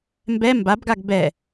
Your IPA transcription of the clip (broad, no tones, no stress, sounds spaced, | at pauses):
m b ɛ m b a b ɡ a ɡ b ɛ